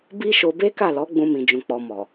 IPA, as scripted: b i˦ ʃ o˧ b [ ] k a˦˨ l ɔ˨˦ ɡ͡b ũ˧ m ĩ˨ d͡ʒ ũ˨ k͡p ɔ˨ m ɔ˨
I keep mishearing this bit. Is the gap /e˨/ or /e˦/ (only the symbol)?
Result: e˦